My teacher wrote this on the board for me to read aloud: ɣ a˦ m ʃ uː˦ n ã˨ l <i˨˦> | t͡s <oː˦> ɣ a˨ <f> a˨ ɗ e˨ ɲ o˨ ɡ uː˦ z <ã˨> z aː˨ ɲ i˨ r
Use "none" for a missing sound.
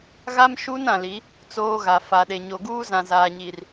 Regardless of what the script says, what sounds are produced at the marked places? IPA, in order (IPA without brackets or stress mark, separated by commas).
i˨˦, oː˦, f, ã˨